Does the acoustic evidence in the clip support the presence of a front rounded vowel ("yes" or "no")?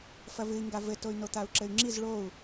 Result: yes